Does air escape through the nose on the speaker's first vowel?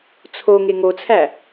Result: no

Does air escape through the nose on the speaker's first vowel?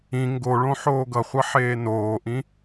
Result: yes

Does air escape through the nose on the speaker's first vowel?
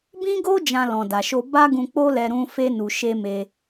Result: yes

